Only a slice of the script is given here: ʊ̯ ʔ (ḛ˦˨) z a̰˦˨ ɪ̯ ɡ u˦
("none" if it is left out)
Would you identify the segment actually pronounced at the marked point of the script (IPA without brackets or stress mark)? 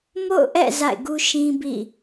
ɛ̰˦˨